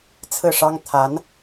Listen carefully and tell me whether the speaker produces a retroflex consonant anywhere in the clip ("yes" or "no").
yes